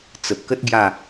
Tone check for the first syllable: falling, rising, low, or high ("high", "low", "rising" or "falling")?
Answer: low